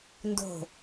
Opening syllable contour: falling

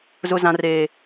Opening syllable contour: high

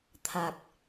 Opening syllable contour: low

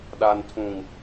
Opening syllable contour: low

